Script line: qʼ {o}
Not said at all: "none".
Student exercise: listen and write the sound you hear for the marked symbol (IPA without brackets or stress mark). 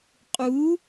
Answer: u